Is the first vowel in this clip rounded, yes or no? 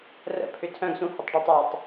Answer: no